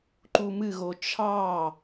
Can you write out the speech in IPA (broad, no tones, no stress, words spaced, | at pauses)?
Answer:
ǃumɨɣo t͡ʃʰɑ